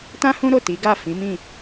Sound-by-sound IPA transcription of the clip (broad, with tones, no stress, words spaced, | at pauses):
tã˦hũ˦ ɾo˦˨ti˨˦ɡa˦˨ fĩ˨˦mĩ˦˨